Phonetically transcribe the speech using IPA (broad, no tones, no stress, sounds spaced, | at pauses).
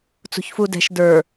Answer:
t͡s ṳ ç f u d ɛ̤ ʃ d ə˞